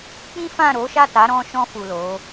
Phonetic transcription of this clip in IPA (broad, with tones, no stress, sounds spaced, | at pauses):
k͡p ĩ˦ f ã˦˨ ɾ o˨˦ ʃ a˦˨ t a˨˦ ɾ ɔ̃˧ ʃ ɔ̃˧ f u˨ l o˨˦